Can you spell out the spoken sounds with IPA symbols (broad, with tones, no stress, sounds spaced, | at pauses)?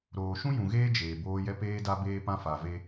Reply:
ɾ oː˨ ʃ ũ˦ j ũ˨ ɣ eː˦ d͡ʒ eː˨ b oː˦ j ɛ˦ p eː˦ d a˦ b eː˦ p ã˦ f a˨ v e˦